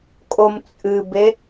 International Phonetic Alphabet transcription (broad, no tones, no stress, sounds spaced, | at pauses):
kʼ o m t͡sʼ ɨ b e